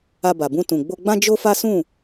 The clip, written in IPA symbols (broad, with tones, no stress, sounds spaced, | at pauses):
a˧ b a˨ b ũ˧ t ũ˨ ɡ͡b o˧ ɡ͡b ã˦ d͡ʒ o˦ f a˦ s ũ˦˨